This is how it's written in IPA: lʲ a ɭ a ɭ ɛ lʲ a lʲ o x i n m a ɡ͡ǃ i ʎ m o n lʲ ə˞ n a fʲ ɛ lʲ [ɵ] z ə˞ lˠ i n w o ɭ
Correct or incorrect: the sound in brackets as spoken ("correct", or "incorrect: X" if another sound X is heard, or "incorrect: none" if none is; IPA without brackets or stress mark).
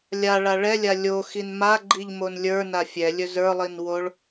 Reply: correct